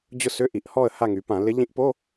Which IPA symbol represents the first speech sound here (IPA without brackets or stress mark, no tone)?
d͡ʑ